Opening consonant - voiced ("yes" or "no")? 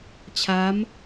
no